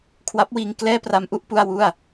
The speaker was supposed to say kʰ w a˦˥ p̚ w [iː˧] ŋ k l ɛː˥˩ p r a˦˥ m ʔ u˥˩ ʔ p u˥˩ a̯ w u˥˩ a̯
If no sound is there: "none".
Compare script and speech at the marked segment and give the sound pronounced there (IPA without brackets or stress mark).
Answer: iː˧